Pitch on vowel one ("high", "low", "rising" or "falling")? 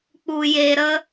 low